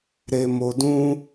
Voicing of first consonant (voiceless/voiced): voiced